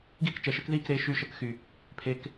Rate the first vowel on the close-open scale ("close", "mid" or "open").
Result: close